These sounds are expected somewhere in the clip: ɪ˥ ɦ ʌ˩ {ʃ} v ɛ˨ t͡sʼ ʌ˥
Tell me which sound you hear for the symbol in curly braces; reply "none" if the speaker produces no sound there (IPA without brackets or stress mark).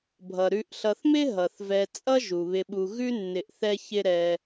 θ